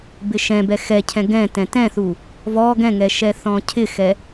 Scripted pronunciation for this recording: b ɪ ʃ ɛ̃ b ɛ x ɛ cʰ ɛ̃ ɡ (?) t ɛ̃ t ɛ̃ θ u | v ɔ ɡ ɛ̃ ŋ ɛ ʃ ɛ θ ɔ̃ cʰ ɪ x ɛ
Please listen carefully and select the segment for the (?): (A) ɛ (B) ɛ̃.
B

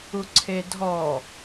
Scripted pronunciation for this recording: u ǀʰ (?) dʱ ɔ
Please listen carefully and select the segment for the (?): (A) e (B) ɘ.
A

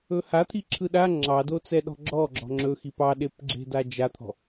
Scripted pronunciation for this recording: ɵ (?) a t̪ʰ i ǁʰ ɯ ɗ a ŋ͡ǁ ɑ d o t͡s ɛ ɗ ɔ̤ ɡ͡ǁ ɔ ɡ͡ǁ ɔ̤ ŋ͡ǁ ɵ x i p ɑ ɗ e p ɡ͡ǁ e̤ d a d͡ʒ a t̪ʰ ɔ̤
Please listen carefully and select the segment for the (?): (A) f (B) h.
B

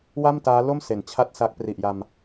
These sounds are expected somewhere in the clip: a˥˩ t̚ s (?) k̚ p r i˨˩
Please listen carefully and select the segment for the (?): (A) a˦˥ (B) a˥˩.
A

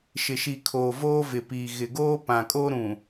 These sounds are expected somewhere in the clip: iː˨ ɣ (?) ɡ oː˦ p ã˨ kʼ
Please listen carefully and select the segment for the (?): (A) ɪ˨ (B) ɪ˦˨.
A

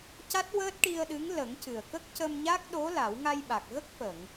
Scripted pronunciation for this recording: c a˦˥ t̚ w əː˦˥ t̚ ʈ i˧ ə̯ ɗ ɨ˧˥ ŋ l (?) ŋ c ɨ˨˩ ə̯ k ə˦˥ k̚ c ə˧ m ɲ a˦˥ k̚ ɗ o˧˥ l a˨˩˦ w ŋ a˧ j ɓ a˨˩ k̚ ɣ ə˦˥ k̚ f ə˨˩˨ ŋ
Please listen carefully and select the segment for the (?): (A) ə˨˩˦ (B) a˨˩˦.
A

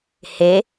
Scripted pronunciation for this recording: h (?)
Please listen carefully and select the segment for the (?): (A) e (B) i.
A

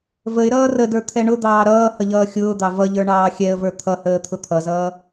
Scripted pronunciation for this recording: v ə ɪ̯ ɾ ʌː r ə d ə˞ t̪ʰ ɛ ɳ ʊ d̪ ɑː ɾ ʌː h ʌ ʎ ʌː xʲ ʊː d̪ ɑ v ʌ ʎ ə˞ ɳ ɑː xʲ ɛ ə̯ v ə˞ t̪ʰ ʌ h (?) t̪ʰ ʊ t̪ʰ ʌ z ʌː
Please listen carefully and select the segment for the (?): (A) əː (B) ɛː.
A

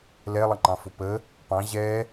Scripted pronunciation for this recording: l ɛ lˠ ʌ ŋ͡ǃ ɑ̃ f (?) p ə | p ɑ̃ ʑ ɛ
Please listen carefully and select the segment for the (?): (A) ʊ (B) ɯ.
A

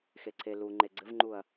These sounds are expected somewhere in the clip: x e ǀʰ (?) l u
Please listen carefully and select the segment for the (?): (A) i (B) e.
B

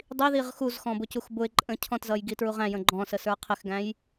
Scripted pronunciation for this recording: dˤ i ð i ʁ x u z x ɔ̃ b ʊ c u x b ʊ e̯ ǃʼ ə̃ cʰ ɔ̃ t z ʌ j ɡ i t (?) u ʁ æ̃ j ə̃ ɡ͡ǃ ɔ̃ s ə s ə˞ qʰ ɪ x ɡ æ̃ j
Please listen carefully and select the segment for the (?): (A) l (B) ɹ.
B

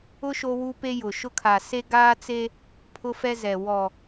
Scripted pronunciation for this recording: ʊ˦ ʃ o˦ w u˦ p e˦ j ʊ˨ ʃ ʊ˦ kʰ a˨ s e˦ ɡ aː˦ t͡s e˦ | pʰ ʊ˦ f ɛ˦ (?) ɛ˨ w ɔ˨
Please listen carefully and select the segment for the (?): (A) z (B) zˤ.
A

